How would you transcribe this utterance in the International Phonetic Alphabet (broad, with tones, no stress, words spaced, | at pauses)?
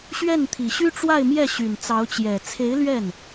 ɕɥɛ˥˩nt̪ʰi˨˩ɕy˥ ʈ͡ʂwa˥˧ɪ̯mjɛ˥˩ ɕy˨˩nt͡sɑ˧˥ʊ̯t͡ɕjɛ˨˩ t͡sʰe˧˥ɪ̯ lɥɛ˥˩n